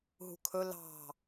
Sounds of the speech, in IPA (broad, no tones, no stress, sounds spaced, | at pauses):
ɦ ṳ kʰ ɵ l ɑ̤